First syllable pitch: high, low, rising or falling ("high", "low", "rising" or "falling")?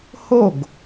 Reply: falling